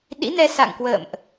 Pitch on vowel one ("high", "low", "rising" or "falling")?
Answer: rising